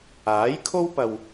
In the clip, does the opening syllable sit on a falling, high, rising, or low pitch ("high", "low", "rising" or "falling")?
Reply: rising